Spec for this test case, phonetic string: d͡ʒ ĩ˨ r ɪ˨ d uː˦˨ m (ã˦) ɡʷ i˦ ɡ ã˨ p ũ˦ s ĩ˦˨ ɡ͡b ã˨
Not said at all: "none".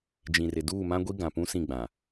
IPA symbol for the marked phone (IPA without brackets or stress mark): ã˦